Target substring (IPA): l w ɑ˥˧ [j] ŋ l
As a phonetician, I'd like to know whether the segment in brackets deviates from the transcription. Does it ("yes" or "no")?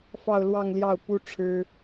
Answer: yes